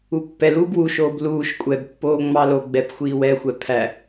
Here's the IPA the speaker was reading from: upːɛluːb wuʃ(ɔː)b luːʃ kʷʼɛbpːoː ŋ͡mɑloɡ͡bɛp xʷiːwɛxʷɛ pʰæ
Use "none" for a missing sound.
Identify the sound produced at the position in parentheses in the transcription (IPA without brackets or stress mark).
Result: oː